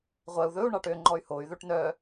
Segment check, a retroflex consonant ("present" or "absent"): present